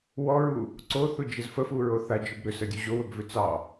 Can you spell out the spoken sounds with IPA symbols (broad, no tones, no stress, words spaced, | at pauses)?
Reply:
wɔɹu | ǀoθud͡ʒəz fəfuɹo θad͡ʒɵb ɾʏsədʲu ʑowɵbvʏ t͡sɑ